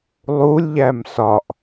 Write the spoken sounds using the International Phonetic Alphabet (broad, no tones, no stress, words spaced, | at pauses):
lˠulʲʎæm sɒʔ